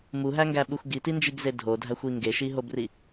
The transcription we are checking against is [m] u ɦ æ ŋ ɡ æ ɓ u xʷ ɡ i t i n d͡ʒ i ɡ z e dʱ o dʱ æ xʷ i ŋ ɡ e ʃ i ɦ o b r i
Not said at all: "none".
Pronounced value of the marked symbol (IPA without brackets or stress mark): m